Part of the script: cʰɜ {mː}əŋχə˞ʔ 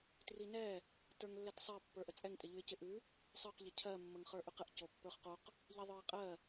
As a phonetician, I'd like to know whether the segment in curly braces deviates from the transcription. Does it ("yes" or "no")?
no